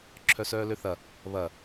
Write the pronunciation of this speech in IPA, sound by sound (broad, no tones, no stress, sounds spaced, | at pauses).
ǁʰ œ s œː l ø θ ɐ | β ɐ